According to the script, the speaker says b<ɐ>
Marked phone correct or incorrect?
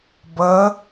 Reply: correct